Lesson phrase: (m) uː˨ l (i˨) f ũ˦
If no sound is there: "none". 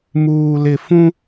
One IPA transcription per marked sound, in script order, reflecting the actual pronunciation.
m, ɪ˨

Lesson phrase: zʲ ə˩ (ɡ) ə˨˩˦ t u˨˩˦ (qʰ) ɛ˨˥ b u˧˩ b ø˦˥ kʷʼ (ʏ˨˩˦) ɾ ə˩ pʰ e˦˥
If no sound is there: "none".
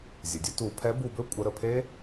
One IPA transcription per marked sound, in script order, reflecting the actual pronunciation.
dʲ, pʰ, ə˨˩˦

